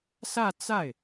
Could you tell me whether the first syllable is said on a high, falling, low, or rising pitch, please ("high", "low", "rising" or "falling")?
falling